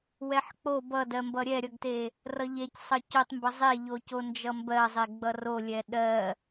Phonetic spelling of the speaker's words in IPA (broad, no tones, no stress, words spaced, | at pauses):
wɛħk͡po bʌdɜmbʌ ɾʲɛɾʲʌɡte | rʌʎec sˤʌcotˤmbʌ zˤeʎoco nd͡ʒʌmbɜzˤe ɡ͡bʌrolʲɛ ɗɜ